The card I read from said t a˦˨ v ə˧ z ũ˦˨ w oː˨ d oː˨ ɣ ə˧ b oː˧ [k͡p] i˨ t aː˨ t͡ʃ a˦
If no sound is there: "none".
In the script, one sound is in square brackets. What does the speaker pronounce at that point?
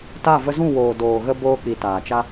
k͡p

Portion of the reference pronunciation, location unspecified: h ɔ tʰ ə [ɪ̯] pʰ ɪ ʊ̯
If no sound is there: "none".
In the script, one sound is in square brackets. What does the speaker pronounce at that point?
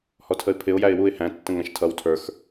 ɪ̯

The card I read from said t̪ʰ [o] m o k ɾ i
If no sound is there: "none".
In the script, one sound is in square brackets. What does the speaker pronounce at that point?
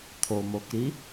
o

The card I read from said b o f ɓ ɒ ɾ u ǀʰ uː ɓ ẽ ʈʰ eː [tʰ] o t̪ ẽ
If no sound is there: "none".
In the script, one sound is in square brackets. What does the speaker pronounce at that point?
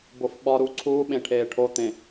ʈʰ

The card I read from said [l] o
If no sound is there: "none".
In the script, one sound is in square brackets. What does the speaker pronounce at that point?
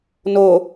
n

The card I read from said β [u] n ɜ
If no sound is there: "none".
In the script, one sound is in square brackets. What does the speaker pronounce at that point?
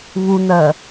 u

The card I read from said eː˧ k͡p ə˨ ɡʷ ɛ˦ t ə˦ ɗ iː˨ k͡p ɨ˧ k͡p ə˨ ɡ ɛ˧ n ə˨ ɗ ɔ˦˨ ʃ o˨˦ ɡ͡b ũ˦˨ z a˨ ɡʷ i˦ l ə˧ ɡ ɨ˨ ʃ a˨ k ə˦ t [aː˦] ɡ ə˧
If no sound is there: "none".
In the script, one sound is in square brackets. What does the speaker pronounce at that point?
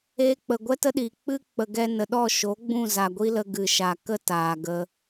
aː˨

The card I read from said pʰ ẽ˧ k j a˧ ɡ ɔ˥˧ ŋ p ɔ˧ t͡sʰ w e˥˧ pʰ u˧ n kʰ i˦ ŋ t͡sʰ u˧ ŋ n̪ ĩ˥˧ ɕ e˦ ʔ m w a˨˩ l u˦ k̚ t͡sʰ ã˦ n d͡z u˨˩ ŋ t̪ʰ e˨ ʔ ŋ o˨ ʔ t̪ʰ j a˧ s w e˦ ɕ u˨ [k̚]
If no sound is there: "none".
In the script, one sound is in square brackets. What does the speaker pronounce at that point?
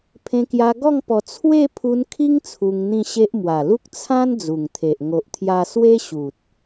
t̚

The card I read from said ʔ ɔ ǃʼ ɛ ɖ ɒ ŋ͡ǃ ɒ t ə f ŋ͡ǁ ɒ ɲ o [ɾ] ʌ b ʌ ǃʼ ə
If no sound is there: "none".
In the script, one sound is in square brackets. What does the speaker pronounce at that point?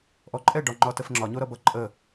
ɾ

